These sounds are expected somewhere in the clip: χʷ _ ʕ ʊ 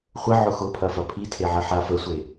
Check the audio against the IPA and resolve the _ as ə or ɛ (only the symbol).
ə